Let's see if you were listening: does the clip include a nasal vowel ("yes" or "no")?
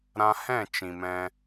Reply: yes